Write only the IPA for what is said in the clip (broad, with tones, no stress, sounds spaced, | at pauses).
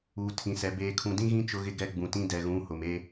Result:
uː˨ tʰ ĩ˨ s ɛ˨ b eː˨ kʰ ũ˨ d ĩ˦ ɣ ĩ˦ t͡ʃ ʊ˦ ɣ ɪ˦ ɡ ɛ˦ ɡ͡b ũ˨ t ĩ˦ d ɛ˨ ɣ ũ˨˦ h ʊ˨ m e˦